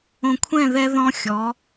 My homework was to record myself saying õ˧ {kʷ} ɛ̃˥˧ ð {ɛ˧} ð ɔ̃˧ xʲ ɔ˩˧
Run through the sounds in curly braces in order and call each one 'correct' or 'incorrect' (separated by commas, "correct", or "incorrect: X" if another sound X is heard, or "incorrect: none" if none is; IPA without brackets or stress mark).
incorrect: kʷʰ, correct